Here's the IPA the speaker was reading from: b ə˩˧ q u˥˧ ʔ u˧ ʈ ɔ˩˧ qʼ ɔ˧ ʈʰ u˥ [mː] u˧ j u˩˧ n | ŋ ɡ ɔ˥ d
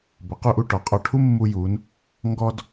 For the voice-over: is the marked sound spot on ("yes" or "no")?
yes